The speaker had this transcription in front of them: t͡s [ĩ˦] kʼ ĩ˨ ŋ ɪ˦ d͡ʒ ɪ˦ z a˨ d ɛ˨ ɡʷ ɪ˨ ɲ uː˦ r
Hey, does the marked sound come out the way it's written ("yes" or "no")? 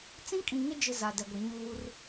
yes